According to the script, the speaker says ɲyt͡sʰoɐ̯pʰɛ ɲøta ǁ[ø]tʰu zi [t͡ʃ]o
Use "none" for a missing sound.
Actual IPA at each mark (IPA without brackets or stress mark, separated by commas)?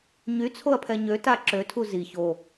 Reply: ø, ç